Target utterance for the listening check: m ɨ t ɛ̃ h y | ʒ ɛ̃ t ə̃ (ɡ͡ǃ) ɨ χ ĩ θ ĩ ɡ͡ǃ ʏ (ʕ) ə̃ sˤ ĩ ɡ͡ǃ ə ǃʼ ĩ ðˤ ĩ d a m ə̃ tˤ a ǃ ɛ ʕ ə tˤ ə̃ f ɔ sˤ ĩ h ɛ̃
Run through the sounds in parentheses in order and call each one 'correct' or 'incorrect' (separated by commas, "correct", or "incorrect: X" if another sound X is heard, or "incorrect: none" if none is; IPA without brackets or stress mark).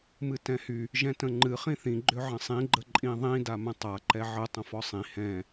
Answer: incorrect: ŋ͡ǃ, correct